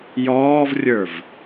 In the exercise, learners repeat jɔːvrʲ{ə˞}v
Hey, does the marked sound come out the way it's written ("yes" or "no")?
yes